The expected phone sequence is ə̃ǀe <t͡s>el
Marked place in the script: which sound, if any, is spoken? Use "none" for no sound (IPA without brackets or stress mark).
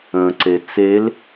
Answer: t͡s